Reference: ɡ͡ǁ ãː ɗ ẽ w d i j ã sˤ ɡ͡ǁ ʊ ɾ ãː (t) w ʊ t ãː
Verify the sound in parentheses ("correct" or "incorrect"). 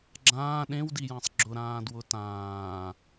incorrect